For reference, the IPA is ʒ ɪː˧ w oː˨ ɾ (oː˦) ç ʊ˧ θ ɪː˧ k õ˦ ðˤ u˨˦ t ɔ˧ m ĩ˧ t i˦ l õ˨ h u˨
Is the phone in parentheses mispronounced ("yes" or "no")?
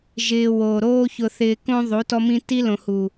no